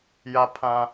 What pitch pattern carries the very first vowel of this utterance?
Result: high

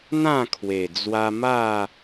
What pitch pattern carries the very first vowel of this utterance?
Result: falling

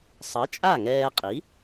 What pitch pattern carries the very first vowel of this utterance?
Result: rising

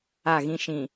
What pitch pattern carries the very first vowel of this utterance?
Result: falling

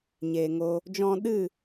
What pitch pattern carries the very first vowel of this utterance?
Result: low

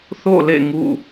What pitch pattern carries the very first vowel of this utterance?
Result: falling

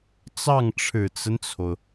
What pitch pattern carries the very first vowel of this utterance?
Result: falling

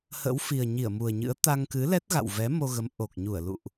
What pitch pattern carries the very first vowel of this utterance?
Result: rising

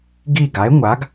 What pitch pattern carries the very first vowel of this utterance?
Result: falling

